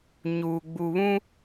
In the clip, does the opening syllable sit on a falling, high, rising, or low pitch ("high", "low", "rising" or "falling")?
low